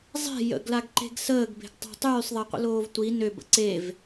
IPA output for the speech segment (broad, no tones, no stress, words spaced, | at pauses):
zˤe̤ jə̰ɡlaɡǃe̤ɡ səːɡbe̤ɡtˤa̤ tˤyːsˤðˤeqʷə̰loːv tʷi nøbə̰ ǀev